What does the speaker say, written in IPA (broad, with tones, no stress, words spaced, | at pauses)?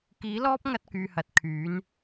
kiː˨˥lɔː˥p̚ ŋɐ˥t̚kyː˨hɐ˨˥t̚kʰyː˨˥n